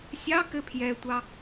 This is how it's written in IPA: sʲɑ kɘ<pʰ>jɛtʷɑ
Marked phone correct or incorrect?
correct